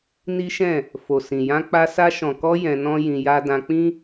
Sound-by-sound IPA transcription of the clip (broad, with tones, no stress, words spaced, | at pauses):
ni˦ʃɛ̃˦˨ | fo˨sĩ˨jã˧k͡pa˧ sa˧ʃɔ̃˨kɔ˧ jɛ̃˧nɔ̃˦jĩ˧ ja˧dã˧k͡pĩ˦